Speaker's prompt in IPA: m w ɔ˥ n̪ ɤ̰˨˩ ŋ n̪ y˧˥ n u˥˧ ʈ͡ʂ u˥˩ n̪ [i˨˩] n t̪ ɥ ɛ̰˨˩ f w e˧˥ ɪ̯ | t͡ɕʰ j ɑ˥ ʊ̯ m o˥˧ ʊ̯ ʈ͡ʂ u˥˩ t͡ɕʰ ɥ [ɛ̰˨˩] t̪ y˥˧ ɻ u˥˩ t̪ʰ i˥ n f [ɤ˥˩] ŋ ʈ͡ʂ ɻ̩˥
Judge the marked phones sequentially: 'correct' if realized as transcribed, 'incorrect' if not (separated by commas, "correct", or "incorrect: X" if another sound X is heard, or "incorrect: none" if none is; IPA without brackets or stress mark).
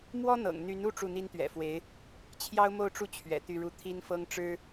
incorrect: i˥, correct, incorrect: ɤ˥